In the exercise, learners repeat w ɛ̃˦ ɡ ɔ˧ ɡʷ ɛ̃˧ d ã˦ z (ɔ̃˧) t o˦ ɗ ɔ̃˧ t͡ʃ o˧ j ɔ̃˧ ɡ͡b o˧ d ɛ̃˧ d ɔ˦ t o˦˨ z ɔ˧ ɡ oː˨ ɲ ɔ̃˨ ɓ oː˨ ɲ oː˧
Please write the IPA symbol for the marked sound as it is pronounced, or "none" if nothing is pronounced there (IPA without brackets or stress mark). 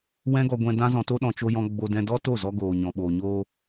ɔ̃˧